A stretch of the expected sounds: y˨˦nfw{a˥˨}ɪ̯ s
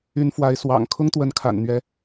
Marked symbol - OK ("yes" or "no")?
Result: no